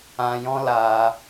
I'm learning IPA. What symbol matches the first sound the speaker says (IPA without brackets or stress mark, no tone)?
ã